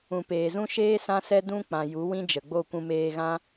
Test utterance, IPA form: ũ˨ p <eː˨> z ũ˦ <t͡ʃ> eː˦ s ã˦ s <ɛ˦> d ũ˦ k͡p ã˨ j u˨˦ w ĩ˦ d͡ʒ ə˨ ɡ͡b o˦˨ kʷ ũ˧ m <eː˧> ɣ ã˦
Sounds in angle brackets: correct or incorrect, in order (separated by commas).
correct, incorrect, correct, correct